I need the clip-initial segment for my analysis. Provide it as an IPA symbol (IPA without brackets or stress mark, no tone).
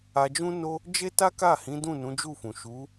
a